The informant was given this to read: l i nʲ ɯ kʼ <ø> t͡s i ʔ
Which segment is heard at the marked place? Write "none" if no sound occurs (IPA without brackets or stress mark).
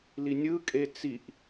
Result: e